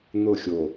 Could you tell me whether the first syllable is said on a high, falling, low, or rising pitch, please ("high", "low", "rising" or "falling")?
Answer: falling